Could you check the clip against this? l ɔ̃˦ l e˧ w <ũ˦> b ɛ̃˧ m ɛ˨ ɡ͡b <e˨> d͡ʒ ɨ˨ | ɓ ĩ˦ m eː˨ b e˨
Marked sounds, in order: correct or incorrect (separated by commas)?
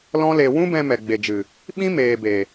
correct, correct